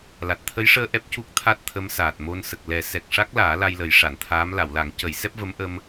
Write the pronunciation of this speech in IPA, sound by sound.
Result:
l a˨˩ t̚ t̪ʰ ə˧˥ j ʂ əː˧ ʔ ɛ˦˥ p̚ c u˦˥ k̚ t̪ʰ a˦˥ t̚ t̪ʰ ə˧˥ m s aː˨˩ t̚ m o˧ n s ə˨˩ k̚ l ɛ˨˩˦ s ɛ˨˩ k̚ ʂ a˦˥ k̚ l aː˨˩˦ l a˧ j l ə˨˩˦ j ʂ a˨˩˨ n t̪ʰ aː˧˥ m l a˨˩˨ w l a˨˩˦ ŋ c ə˨˩˦ j s ɛ˦˥ p̚ v ə˧˥ m ʔ ə˧ m

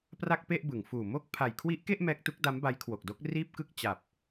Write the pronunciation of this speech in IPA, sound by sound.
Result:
p r a˥˩ k̚ p e˥˩ ʔ b ɯ˩˦ ŋ f uː˨˩ m o˦˥ k̚ pʰ a˨˩ j kʰ w i˦˥ ʔ k e˥˩ ʔ m ɛː˦˥ k̚ t u˦˥ k̚ d a˦˥ m b a˦˥ j kʰ w o˨˩ k̚ d o˦˥ k̚ r iː˥˩ p̚ k ɯ˥˩ k̚ t͡ɕ a˨˩ p̚

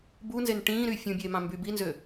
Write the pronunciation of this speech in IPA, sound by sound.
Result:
b uː n z e n ʈ ĩː ɾ yː fʲ ũ bʲ eː m ɑ̃ m b y b i n z ø

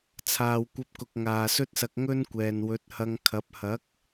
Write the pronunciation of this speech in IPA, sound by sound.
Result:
t͡sʰ aː˨ w kʷ ɐ˧ p̚ k ʊ˨ k̚ ŋ aː˨ s ɵ˥ t̚ s ɐ˧ k̚ ŋ ɵ˥ n kʷ ɛː˨ n w ɵ˨˥ t̚ h ɐ˧ ŋ kʰ ɐ˨˥ p̚ h ɐ˨˥ k̚

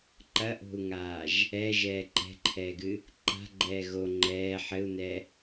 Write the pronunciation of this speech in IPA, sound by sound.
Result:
ǃ ɐ ʔ o̤ u̯ ŋ aː ʒ | ɛ ʒ ɛː ǃ ɛ̤ ǃʰ ɛː ɡ ɨ | ǃ a̤ ɡ͡ǃ ɛː ɣ o ŋ͡ǃ ɛː ħ ɘ u̯ n ɛ

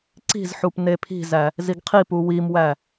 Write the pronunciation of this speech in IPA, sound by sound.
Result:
ǀ i̤ z ħ u p n e pʰ i̤ z æ | z i ɡ qʰ i p u w i m w æ

